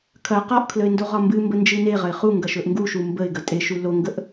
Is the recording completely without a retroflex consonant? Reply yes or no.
yes